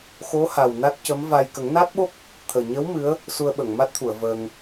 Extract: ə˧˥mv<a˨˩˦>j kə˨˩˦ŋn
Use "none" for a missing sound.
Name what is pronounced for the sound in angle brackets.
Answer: a˧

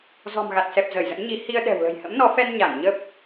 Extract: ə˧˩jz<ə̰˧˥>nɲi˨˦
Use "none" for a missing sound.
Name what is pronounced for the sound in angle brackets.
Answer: ə̰˧˥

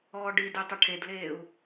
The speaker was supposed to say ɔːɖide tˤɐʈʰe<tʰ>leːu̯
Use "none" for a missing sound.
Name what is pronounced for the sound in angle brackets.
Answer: d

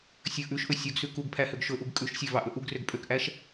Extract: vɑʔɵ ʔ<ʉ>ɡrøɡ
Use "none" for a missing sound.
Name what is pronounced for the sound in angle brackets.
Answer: u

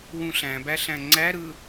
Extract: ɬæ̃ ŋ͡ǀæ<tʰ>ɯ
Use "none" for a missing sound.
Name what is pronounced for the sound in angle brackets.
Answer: ɾ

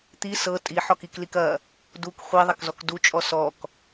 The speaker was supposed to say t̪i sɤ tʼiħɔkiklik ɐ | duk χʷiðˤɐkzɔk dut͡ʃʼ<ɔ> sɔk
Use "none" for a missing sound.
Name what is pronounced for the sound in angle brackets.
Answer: ɔ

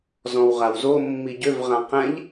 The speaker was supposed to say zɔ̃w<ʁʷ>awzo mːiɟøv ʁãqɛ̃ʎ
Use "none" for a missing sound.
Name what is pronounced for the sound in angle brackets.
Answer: ʁ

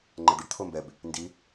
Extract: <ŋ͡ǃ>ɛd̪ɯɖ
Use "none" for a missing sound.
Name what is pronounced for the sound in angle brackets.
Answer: ŋ͡ǃ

